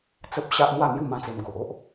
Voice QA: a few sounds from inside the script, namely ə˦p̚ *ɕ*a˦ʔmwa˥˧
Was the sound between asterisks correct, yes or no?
yes